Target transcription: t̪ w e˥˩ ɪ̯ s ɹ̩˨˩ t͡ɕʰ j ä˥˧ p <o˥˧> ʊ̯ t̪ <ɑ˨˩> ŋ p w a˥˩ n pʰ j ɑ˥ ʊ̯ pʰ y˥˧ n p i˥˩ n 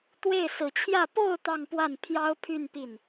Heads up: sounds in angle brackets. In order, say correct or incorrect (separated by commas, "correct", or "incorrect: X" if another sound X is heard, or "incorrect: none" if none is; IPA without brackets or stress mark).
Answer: correct, incorrect: ɑ˥˧